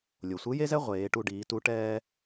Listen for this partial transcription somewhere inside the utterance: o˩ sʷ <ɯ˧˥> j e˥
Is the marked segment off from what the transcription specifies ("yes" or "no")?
no